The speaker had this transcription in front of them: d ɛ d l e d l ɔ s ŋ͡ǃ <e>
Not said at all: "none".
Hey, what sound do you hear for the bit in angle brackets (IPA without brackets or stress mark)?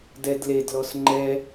ɛ